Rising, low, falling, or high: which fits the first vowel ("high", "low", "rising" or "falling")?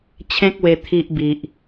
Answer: high